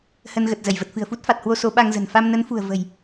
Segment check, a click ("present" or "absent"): absent